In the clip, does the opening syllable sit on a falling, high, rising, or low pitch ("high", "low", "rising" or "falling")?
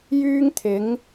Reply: high